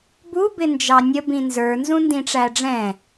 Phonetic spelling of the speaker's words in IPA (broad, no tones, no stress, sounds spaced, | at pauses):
b u b ɪ n d͡ʒ ɑ nʲ ə b ĩ n z ə˞ n z ũ n d ĩ ʈ͡ʂ æ ɖ͡ʐ ɛ̃